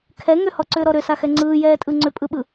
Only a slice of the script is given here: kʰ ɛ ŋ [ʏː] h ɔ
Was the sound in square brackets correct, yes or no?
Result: no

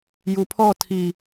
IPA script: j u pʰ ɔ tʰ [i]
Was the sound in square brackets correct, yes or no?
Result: yes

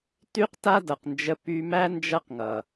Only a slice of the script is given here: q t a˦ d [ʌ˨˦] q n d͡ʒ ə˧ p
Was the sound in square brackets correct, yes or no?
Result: no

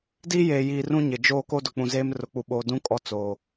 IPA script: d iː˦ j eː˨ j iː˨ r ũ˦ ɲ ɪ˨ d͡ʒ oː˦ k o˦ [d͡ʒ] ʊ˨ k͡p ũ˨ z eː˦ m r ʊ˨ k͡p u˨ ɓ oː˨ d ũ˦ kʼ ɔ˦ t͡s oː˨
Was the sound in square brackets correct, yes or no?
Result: no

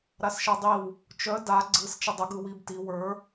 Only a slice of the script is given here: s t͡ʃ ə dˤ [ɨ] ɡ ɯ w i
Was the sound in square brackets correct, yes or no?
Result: no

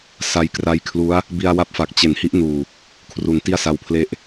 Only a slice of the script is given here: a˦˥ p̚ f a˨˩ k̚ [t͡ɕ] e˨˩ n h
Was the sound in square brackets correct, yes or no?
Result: yes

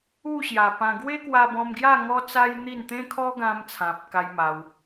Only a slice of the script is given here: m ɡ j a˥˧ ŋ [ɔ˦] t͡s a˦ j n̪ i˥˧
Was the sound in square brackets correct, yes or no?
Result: yes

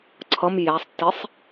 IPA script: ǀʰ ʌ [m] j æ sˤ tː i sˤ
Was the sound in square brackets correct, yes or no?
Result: yes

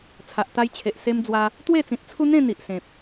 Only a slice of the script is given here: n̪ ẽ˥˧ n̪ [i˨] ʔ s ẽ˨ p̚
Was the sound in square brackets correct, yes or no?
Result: yes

